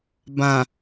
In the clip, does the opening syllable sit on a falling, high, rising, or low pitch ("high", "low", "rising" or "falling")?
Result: low